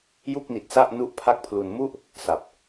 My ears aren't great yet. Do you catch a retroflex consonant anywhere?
no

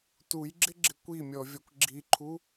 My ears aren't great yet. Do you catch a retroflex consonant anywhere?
no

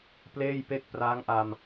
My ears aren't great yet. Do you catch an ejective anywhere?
no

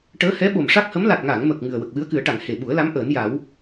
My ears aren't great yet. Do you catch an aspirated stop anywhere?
no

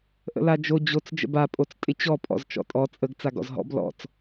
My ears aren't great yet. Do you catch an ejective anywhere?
yes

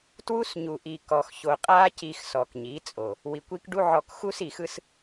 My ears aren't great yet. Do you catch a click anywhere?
no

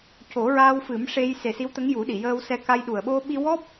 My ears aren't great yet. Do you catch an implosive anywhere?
yes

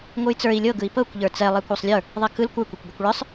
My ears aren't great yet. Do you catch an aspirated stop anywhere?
no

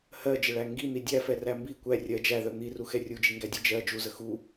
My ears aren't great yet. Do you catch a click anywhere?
no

